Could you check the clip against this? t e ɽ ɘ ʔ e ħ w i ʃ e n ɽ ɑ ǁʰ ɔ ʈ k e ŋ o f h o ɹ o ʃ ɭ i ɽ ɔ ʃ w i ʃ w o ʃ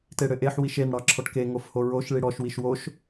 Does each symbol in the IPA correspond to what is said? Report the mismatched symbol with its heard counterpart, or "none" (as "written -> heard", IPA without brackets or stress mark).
none